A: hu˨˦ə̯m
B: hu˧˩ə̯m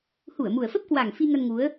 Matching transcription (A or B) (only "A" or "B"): B